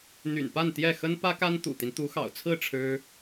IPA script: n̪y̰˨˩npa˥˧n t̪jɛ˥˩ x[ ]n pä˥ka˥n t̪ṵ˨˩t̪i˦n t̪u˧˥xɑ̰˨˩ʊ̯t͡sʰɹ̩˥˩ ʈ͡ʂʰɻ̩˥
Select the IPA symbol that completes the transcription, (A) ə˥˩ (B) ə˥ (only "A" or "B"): B